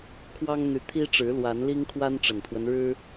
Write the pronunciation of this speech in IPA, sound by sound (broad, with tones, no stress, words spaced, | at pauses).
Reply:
kʰwɑ˦ŋn̪y˨˦t̪ʰi˦ʈ͡ʂɻ̩˨˦ lwa˨˦nli˦ŋkʰwa˦n ʈ͡ʂə˨˩nt̪ʰwə˦nɻɻ̩˦